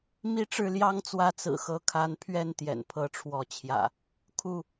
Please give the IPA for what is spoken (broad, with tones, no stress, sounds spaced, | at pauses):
m i˦ ʈ͡ʂ ɻ̩˥˨ l j ɑ˦ ŋ t͡s w ä˥˨ t͡s ɹ̩˨˩ x ɤ˨˦ kʰ a˨˦ n pʰ ɥ ɛ˥˨ n t̪ j ɛ̰˨˩ n pʰ ɤ˨˦ ʈ͡ʂʰ w ɔ˨˦ t͡ɕʰ j ä̰˨˩ | kʰ u˥˨